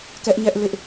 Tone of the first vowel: high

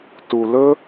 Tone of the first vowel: low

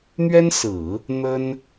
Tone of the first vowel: high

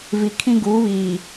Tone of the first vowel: low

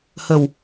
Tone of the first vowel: low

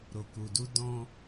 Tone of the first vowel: low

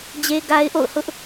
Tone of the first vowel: high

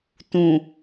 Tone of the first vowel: low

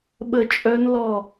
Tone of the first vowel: falling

